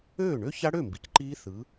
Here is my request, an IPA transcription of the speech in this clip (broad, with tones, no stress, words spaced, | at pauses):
øː˥˩ɳø˦˥ça˦˥ɽø˥˩ mbi˩˧cǃiː˦˥θɯ˨˥